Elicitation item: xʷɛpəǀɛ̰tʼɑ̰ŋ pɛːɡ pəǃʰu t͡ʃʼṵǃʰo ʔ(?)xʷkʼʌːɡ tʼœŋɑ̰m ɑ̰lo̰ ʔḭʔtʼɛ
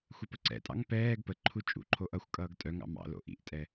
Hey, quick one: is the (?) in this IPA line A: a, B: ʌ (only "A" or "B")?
B